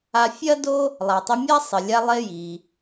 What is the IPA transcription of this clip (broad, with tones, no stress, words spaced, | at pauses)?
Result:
a˧fʲɐ˥do˥ | lˠa˩tˤi˧mʲa˥ sˤɘ˩ lʲa˧ lˠe˧ ji˩